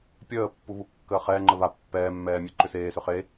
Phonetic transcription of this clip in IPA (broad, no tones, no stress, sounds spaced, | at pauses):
pʲ əː pː u β u kː əː χ ɛː ŋ͡ǃ ə β a pː ɛː mː ɛː mʲ e ǃ ʏ s eː s ʏ χ e